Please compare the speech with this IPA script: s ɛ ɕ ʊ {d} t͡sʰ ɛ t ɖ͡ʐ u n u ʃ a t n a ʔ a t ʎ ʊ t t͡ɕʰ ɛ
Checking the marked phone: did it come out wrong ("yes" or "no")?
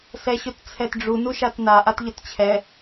yes